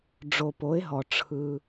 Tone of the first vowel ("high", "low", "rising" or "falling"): low